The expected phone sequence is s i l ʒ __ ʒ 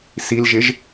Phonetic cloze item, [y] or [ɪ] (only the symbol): ɪ